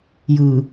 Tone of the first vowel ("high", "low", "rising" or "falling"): low